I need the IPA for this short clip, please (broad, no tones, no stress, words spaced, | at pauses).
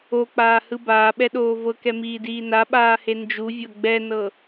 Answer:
ok͡paːhɯ baːɓɛɗoː vɤkɛmiːdiː naɓaːhe nd͡ʒuvʲɤ ɡ͡bɛnɤ